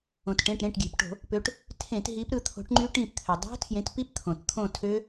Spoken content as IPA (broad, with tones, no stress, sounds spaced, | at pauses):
õ˩ t ʈ ẽ˩˧˩ ʈ ɾ ẽ˩˧˩ ʈ ɡʲ e̤˩ p ʈ o̤˧˩˧ | p ø˨˦ ʈ | tʰ ẽ˧˩˧ t ɦ i˨˦ p ɾ ɯ˦˨ t̪ʰ o̤˨˦ ʈ ŋ͡ǃ y˦˥ ʈ ĩ˦˨ p t̪ʰ ø˩ dˤ o̤˦˥ tʰ j ẽ˨˦ t p i˦˥ p t̪ʰ õ˩ t t̪ʰ õ˦˨ tʰ ø˦˥